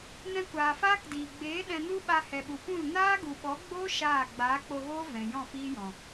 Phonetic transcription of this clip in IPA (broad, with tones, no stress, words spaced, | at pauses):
nɛ̃˧kʷaː˨faː˦kdiː˨ ɡ͡beː˨˦ ɗɛ̃˧nu˦ɓa˧ hɛ˨ɓu˨pũ˦˨l naː˦ɡu˨ɓɔ˨˦ ɡ͡boː˦ ʃaː˦˨ ɡ͡baː˨˦k͡po˧ɣoː˦ vɛ̃˨jɔ̃˦˨fiː˦jɔ̃˨